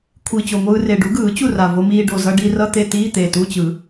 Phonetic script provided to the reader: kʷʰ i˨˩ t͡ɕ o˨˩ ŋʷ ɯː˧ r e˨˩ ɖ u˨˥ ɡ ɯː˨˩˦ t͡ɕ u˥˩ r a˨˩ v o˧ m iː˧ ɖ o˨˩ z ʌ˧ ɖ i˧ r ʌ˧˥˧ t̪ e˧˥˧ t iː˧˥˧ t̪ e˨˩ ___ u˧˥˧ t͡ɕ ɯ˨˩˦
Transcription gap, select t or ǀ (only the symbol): t